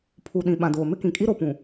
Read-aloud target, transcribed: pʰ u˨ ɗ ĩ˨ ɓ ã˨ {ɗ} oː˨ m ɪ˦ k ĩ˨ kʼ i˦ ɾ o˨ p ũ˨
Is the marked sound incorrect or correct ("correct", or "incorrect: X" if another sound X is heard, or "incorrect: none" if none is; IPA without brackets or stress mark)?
incorrect: d